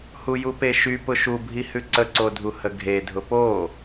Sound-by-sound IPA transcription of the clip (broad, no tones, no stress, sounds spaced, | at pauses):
h u j u p e ʃ y p ʊ ʃ u bʱ i h ʉ ǀ ə ǀ o dʱ u h ə ɡʱ e dʱ ʊ p o